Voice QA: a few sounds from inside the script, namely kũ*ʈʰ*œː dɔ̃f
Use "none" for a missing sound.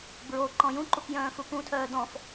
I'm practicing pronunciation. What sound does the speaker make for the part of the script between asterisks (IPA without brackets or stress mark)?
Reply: tʰ